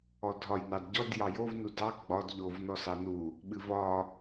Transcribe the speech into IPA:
ɔ dʱ ɒ j n ɑ d ɟ ɔ d j ɑ j o v n u d ɑ ɡ͡b ɒ d ʎ o v n ɔ s ɑ n u | ɓ ɨ v ɒ

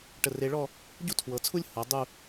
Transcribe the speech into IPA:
ʈ ə˧˩ r e˧ ɭ ɔ˥˧ | ɟ u˥ tʰ w ɤ˩˧ t͡sʰ u˥ lʲ h ɤ˩˧ dˤ u˥˧

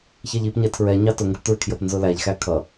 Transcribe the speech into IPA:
ç ɛ ʎ i p ɲ ɛ tʰ ɹ ɛ ɲ ɑ t ʊ ŋ ɡ ə p t ɹ ɪ kʰ j ə p n z ʊ l æ ʎ x æ kʰ ʌ

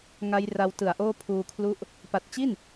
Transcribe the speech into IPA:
ŋ a˦˥ j r a˧ w t ɯ˨˩ a̯ ʔ oː˥˩ pʰ uː˧ kʰ l u˥˩ ʔ | p a˨˩ t̚ t͡ɕ i˥˩ n

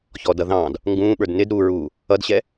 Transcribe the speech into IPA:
ç ɔː d ʌ ð ɑ̃ː d | ŋ ɡ ũː ɓ ə˞ d n ɪ d ɾ uː ɹ uː | ʌ d ɕ ɛ

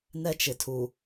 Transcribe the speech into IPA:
n ɛ˦ t͡ʃ ɪ˨ tʰ u˨

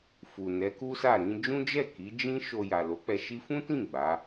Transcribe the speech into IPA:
f u˨ n ɛ˨˦ k u˦ s a˦˨ ɾ ĩ˧ d͡ʒ ũ˦ d͡ʒ ɛ˦˨ k i˨˦ d͡ʒ ĩ˦ ʃ o˧ j a˨ l o˨˦ k͡p ɛ˧ ʃ i˦ f ũ˦ t ĩ˦˨ ɡ͡b a˨˦

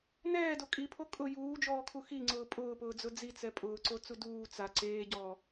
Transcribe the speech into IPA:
n ɛː d o kʼ i pʰ o kʼ ʊ j uː d͡ʒ ɔː kʰ u x i ŋ͡ǀ ʊː pʼ ʊː p ʊː d͡z ʊ d͡z i t͡s ɛ pʼ ʊː ǀ o t͡s u d uː t͡s a ǀ eː ɟ ɔː

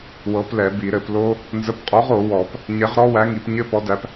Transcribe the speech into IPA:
w ɤ˨˥ p l ɛ˨˩˦ b i˨˩˦ ɾ ɘ˨˩˦ p l o˦˥ | n z ə˨˥ p qʼ ɔ˨˥ ʁ o˨˩˦ w ɔ˨˩˦ p | ɲ ɛ˨˥ ʁ ɾ ɔ˦˥ w æ˨˥ ŋ i˨˩˦ p ɲ ɘ˦˥ p ɔ˨˥ d æ˨˥ p

